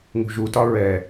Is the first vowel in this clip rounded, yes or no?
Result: yes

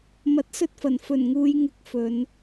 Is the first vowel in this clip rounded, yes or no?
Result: no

